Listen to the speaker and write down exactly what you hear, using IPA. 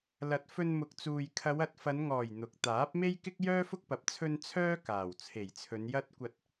l ɐ˨˥ t̚ f ɵ˧ n m ʊ˨ k̚ t͡s uː˨ j kʰ ɐ˨˧ w ɐ˨ t̚ f ɐ˨˧ n ŋ ɔː˨˩ j n̪ ʊ˨˥ k̚ t̪ aː˨˥ p̚ m e˥ j k ɪ˥ k̚ j œː˥ f ʊ˥ k̚ p ɐ˨ p̚ t͡sʰ ɵ˧ n t͡sʰ œː˥ k aː˨˩ w t͡sʰ e˨˩ j t͡sʰ ɵ˨˧ n j ɐ˥ t̚ kʷ ɐ˧ t̚

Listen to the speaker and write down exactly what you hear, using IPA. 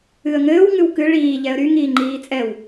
ɨ ə̯ ŋ ɘː w ŋ ɨ w k ɨ ɭ iː ʎ ɛ ə̯ ɾ y ŋ iː ŋ͡ǃ iː t͡sʼ ɛ w

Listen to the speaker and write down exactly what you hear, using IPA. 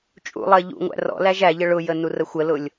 t͡ʃʼ ṵ lˠ ɜ ʎ ṵ ŋʷ æ̰ r ɔ̰ l æ ʒ æ ʎ ə ɭ ʊ j ə n u r ə xʷ ə l ʊ lʲ

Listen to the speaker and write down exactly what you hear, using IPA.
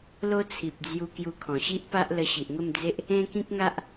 l o˦ t͡sʰ i˨ p̚ d͡z j u˧ k j u˧ kʰ ɔ̃˨˩ ɕ i˦ ʔ p a˦ ʔ l ə˧ ɕ i˨ ʔ ŋ ə˥˧ m d͡z e˦ ʔ | ẽ˦ k ĩ˦ k̚ ŋ a˦ ʔ

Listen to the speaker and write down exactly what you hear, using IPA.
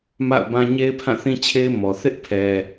m a̰˦˨ ʊ̯ b ã˦ ɲ e˦ ɪ̯ pʰ ã˦˨ θ ĩ˦ t͡ɕʰ e˦ ɪ̯ m ɔ˨ θ ɪ˦ ʔ pʰ ɛ˦

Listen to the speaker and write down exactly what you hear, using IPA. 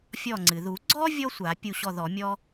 fʲ ɔ˧˩ ŋ͡ǀ ɨ˩ ð u˨˩˦ ɡ͡ǀ ɔ˥ vʲ ɔ˥ sʷ a˨˩˦ pʲ u˧˩ ɕ ɔ˧˩ ð ɔ˨˩˦ mʲ ɔ˥

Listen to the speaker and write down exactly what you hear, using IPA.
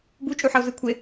b u t͡ʃʼ u ħ ʌ o̯ z ɯ kʷʰ e

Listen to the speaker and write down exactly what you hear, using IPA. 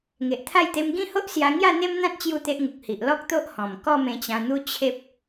ŋ e˨ ʔ t̪ʰ a˥˧ j t̪ e˧ m ɡ ĩ˦ h o˦ ʔ s j a˧ ŋ j a˥˧ n̪ e˦ m n̪ ã˦ t̚ t͡ɕ j u˥˧ t̪ e˦ ʔ ŋ u˨ k̚ h i˨ ʔ l ɔ˦ k̚ t̪ o˦ ʔ h ɔ̃˨˩ m k ɔ˥˧ m ẽ˧ t͡ɕ ã˧ n̪ u˦ t͡ɕʰ e˦ p̚

